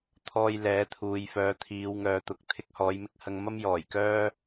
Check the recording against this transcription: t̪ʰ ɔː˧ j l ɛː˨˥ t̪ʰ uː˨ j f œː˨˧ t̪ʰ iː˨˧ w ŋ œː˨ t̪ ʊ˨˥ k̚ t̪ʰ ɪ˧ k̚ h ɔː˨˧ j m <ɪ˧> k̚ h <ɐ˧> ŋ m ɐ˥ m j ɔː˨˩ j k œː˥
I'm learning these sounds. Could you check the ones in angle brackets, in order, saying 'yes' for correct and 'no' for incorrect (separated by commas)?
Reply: yes, yes